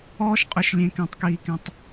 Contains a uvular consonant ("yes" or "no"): yes